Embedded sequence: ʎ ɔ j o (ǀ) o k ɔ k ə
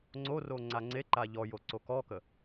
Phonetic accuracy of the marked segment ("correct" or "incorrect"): correct